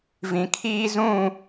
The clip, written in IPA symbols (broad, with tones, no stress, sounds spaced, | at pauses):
v ĩ˨ kʰ iː˦ z ũ˦˨